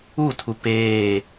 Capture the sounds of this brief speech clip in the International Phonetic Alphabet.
utʰu peː

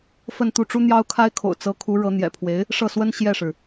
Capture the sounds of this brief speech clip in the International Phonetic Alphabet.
fə˥˧nt̪u˥˩ʈ͡ʂu˥ n̪jɑ˥ʊ̯kʰa˥ɪ̯kʰo̰˨˩ʊ̯ t͡sɤ˧˥kʰu˧˥ ɻɤ˧˥n̪jɛ̰˨˩pʰwe˧˥ɪ̯ | ʂɤ˥˩swə˥n ɕjɛ˥˩ʂɻ̩˩

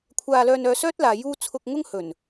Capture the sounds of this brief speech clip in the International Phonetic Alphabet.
kʷʰaː˧ lœː˧nœː˧sœː˥t̚laː˨ juː˥ t͡sʰʊ˧k̚ ŋʊ˥ŋ hɵ˨˩n

